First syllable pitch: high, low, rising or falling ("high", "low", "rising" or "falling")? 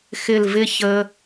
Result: falling